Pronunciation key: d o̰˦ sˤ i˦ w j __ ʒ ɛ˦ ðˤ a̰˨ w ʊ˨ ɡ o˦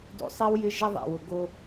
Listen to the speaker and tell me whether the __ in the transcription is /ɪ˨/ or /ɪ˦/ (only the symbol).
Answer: ɪ˦